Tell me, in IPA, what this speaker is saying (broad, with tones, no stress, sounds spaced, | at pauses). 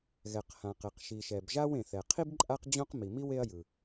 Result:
ɣ ɛ˩ q h ã˩ q e˩ q ʃ i˩ ʃ ɛ˩ b ʒ a˥ w ẽ˩ θ ɛ˩ qʰ i˥ b ǃʼ a˥ q d͡ʑ õ˥ q m i˩ m i˥ w e˥ ɐ̯ j ɯ˩